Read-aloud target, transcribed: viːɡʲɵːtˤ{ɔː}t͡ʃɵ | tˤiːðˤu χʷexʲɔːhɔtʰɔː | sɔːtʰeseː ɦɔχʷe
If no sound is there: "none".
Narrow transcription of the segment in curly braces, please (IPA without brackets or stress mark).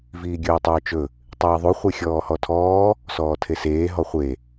ɵː